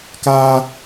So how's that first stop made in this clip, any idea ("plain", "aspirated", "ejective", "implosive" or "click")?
plain